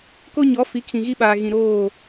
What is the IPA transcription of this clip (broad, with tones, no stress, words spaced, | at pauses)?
ko˦ɲɔ˨˦ fi˨˦kʰĩ˨ɣi˦ɓaː˨ ɣĩ˨ɾoː˦˨